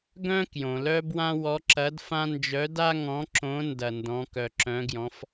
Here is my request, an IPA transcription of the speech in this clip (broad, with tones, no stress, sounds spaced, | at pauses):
ɡ œ̃˥ k j õ˩ l œ˥ b w ã˥ w ɔ˧˥ ǁ ɐ˧˥ d f ã˥ n d͡ʒ œ˧˥ d a˥ ŋ ɔ̃˧˥ ǁ õ˧˥ n d ɐ˧ n d ɔ̃˧˥ k œ˧ ǁ œ̃˧˥ ɡ j ɔ̃˧˥ f